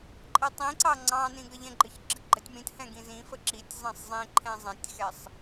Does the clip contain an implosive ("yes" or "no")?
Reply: no